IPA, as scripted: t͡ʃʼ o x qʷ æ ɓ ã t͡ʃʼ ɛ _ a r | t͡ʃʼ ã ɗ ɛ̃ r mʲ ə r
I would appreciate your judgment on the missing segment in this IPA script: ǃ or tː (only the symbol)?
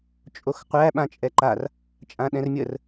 ǃ